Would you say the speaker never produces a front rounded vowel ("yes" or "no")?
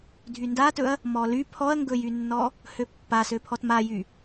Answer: no